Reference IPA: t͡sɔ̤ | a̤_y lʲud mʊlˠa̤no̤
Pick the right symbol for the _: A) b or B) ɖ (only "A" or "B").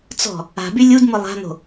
A